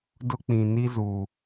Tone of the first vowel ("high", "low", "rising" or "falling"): high